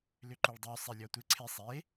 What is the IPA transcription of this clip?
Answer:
l ʏ ǃ u ɭ dˤ y sˤ e lʲ ɔ tʷ ɪ ǀʰ ɪ sˤ e

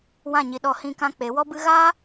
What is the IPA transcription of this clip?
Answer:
w ã˦˨ ɲ i˧ ɗ ɔ˧ h ĩ˧ k ã˧ k͡p e˨˦ w ɔ˦ b ɨ˦ ɣ aː˦

